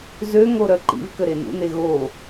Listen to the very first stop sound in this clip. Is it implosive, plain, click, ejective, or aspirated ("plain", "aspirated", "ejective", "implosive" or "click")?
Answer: click